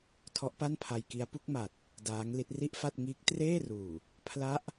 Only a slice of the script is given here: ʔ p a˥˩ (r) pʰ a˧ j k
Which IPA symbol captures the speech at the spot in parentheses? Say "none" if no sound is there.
n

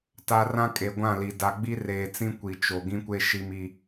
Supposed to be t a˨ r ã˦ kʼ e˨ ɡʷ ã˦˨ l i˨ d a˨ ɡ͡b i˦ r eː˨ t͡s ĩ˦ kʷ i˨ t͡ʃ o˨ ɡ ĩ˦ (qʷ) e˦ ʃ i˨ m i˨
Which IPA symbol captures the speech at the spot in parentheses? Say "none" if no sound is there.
kʷ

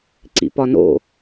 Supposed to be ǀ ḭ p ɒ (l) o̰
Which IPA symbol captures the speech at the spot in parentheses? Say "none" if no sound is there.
n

